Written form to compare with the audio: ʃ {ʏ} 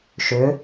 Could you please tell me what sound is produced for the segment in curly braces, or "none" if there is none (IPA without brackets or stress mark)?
ʏ